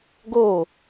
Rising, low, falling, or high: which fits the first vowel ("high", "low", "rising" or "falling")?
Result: falling